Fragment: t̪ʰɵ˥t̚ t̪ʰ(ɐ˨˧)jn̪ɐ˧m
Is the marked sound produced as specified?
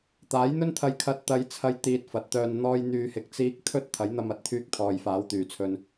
no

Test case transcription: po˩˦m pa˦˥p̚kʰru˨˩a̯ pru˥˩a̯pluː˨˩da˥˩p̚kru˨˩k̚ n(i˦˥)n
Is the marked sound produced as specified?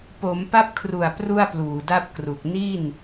no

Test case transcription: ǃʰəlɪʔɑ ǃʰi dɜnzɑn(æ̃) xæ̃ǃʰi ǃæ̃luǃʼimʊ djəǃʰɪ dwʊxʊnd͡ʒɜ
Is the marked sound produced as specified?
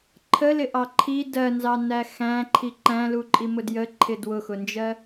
no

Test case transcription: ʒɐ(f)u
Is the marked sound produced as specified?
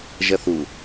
no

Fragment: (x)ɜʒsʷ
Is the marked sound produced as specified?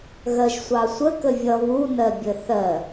no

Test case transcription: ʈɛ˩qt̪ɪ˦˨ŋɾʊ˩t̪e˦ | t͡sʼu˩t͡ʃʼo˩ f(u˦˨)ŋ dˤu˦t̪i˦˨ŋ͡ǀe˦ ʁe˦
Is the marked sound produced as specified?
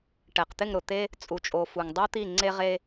no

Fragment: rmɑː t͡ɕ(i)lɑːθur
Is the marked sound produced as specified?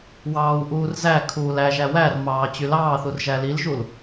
no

